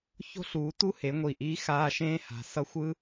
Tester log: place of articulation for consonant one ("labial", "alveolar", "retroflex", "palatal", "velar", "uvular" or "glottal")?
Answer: palatal